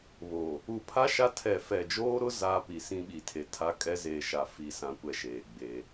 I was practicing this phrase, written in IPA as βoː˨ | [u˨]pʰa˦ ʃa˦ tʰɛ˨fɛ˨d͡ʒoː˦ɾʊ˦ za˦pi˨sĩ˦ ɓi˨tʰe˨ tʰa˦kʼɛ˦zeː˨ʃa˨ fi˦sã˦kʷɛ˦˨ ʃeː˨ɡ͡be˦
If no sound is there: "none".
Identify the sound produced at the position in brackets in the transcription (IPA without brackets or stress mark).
u˨